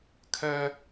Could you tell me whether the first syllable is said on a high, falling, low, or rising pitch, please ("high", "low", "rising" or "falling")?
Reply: high